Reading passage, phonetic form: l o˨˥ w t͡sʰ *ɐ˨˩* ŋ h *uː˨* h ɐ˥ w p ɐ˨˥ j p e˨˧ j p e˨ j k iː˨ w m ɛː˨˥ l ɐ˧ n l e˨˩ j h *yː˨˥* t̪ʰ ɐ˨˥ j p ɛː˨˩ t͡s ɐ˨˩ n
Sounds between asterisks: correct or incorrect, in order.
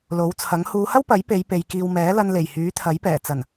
incorrect: ɐ˨˥, incorrect: uː˨˧, correct

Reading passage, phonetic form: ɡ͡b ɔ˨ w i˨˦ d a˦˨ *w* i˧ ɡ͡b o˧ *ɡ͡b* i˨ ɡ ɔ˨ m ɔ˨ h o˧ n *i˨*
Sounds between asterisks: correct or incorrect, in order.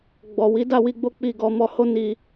correct, incorrect: k͡p, correct

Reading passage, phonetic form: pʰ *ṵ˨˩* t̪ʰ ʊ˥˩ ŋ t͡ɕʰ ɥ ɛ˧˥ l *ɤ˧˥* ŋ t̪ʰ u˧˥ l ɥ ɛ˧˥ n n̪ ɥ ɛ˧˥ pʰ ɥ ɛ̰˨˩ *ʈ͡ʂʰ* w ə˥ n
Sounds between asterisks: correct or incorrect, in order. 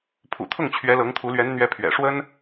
correct, correct, incorrect: ʂ

